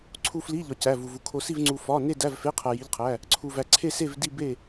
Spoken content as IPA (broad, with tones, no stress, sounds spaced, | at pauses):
ǀʰ u˧ f l i˧˥˧ ʎ ɒ˧ c æ˧˥˧ v u˧ v u˧ kʰ o˧ s i˥˧ v ŋ͡ǀ u˧ f ɒ˧˥˧ n e˥˧ d æ˧˥˧ v f e˧˥˧ qʰ æ˧ j i˧˥˧ ʎ qʰ æ˧˥˧ | ǀʰ u˧ v æ˧ ǀʰ e˥˧ s e˥˧ v d i˥˧ b e˥˧